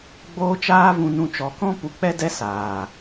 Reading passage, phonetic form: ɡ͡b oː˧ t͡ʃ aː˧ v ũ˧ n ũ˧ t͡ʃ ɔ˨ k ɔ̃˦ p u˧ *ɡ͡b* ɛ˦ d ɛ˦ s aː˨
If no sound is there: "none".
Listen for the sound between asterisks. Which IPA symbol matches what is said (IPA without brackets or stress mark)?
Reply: k͡p